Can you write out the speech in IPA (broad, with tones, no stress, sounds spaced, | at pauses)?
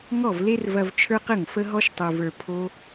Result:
ŋ ɔ˦˨ v l e˦ r v ɐ˧ v t͡ʃʰ ə˞˦ q ə˦˨ ŋ f ə˦ ɦ ɔ˦ ʃ tˤ ə˞˨ v ə˞˨ pʰ o˦